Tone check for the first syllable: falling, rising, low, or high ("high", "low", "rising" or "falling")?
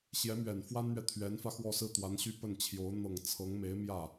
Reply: rising